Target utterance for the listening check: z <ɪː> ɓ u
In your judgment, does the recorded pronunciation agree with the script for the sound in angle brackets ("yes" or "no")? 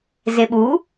no